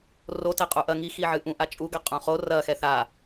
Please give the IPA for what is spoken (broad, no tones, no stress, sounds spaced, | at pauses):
r o t ɛ qʼ u ʔ ɐ ŋ i x i ʕ ɨ ʔ ũ ʔ a t͡ʃʼ u ɡ a qʼ ũ χ o r ɐ x ɛ θ a